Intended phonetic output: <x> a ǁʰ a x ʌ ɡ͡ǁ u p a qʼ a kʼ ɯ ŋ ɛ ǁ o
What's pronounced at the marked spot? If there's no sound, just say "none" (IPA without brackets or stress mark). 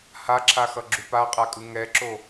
h